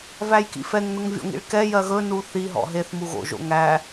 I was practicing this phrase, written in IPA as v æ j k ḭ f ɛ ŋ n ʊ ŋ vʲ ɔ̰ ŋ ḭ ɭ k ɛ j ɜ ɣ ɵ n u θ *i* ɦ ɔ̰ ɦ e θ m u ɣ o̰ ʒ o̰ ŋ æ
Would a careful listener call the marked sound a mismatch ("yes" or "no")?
no